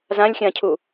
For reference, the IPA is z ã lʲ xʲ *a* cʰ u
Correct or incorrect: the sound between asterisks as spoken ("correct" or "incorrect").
incorrect